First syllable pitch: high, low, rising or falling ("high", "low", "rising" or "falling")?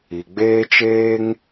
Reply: low